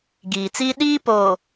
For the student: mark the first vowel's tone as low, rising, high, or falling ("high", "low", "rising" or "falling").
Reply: low